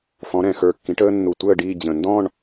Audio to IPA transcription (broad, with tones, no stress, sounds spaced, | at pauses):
f ɔ̃˧˥ ɾ ɛ̃˧˩˧ x ə˞˧˩ kː ĩ˧˥ ʈ əː˥ nː u˧˩˧ tʷ əː˥˧ ɖ iː˥˧ d͡ʑ ə̃˧˩˧ n d ɔ̃˥˧ ɳ